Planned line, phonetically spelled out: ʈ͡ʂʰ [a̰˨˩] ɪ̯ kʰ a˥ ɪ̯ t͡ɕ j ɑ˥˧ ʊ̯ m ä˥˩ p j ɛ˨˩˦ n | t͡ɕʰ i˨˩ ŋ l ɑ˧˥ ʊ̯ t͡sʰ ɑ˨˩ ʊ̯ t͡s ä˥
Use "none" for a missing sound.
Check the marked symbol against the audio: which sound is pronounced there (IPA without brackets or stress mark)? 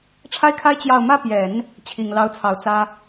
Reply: a˥